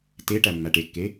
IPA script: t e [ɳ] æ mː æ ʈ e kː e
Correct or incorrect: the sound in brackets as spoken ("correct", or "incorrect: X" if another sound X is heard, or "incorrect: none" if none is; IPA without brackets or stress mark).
incorrect: ʈ